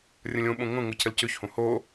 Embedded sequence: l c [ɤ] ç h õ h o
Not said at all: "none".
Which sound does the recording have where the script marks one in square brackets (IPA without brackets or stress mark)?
ɵ